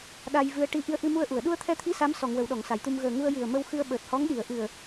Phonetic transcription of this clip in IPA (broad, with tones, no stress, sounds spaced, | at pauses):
ɗ a˧ j v ɨ˧ ə̯ ʈ i˧ ʔ i˧ ə̯ ʔ ɨ˧ m u˧ ə̯ ʔ u˨˩˨ ə̯ ɗ u˧ ə̯ t̪ʰ ɛ˧ t̪ʰ i˧˥ s a˧˥ m s ɔ˨˩˨ ŋ w ə˨˩˨ w ɗ ɔ˨˩˨ ŋ s a˨˩˨ j t̪ u˧ m ɣ əː˨˩ ŋ u˧ ə̯ j ɨ˨˩ ə̯ m ə˧ w x ɨ˧ ə̯ ɓ əː˨˩ t̚ h ɔ˧˥ ŋ ɗ i˨˩˨ ə̯ ʔ ɨ˨˩ ə̯